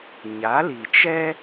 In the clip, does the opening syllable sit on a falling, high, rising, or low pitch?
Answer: rising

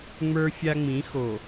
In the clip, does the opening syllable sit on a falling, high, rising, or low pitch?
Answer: high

